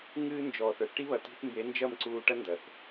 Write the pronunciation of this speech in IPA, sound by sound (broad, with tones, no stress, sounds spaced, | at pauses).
ŋ ɨː˧ n d͡ʒ ɔː˨ θ ə˞˧ θ ʈ i˧ β ɐ˨ t i̤˧ θ m b e˨˦ n d͡ʒ ɐ˦˨ m ǀ uː˧ ʈ ɐ˦ n d ɐ˨ θ